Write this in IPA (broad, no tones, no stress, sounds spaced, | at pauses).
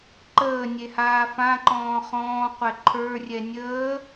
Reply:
ǃ əː nʲ e h aː f ã ǃ ɔ̃ː χ ɔ̃ː qʷ ɛ ǃʰ ə˞ rʲ ɛ nʲ əː